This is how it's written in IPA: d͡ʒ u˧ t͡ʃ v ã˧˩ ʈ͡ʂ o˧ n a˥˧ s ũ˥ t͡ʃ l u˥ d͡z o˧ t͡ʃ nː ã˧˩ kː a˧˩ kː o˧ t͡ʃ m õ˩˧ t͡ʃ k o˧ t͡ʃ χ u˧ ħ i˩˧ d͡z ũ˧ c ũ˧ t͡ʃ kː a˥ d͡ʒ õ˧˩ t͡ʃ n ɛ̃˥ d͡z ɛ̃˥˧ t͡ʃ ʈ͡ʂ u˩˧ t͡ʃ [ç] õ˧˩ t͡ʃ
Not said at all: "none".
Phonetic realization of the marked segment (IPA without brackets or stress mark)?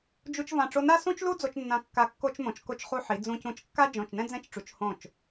h